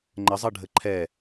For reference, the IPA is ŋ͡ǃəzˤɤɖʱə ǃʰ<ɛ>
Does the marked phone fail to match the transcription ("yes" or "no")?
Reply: no